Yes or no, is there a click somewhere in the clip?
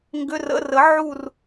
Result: no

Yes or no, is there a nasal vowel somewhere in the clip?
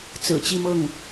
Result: no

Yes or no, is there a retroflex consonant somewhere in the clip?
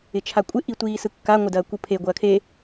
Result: no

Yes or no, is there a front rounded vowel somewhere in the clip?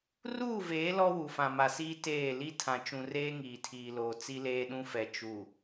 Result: no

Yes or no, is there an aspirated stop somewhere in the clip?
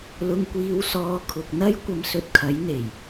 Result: yes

